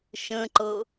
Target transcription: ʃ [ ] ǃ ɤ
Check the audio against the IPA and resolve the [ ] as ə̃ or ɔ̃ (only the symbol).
ə̃